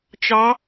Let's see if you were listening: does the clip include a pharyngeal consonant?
no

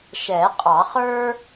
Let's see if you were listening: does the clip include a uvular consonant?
yes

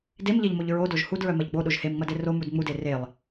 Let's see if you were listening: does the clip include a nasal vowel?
no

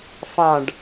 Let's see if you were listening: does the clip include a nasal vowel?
yes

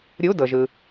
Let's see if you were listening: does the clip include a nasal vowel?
no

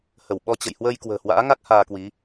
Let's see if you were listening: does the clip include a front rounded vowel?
no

